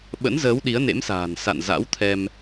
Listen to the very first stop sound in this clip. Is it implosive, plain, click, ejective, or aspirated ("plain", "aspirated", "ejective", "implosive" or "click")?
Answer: implosive